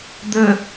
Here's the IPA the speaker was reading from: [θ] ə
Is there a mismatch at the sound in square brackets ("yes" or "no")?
yes